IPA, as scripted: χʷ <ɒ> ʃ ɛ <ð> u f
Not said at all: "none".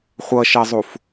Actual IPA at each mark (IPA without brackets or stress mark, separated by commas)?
ʌ, zˤ